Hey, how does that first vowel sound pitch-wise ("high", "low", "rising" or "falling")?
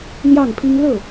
falling